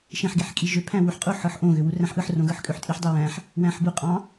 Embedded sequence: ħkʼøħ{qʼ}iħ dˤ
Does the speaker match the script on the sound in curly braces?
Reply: no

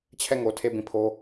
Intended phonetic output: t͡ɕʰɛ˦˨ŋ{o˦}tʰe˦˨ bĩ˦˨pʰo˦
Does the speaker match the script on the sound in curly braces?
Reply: no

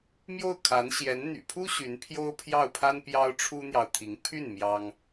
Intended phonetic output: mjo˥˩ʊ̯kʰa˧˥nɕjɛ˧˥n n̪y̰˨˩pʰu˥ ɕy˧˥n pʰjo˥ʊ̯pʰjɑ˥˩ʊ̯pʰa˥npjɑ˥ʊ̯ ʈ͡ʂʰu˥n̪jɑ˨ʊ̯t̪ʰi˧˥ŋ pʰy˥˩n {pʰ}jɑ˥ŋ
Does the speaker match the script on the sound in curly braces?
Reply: no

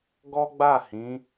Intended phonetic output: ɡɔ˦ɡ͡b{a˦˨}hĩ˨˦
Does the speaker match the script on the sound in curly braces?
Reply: yes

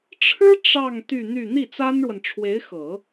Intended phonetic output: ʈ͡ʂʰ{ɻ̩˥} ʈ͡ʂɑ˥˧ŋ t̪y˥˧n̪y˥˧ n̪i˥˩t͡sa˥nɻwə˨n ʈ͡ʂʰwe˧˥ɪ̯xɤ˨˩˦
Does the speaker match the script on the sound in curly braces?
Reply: yes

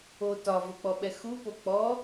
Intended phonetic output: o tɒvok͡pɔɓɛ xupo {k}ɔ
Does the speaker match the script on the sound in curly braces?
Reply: no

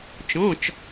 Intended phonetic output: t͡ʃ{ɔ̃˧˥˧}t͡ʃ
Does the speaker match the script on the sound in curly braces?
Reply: yes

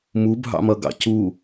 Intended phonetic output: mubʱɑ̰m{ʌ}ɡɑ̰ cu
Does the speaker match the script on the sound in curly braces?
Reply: yes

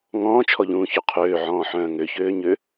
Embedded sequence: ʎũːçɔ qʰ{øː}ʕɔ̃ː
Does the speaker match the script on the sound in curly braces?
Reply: yes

